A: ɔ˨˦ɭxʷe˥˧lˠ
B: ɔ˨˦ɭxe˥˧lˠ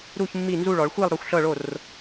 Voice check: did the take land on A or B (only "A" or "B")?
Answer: A